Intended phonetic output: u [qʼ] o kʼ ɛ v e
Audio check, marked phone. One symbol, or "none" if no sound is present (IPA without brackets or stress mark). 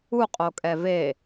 qʼ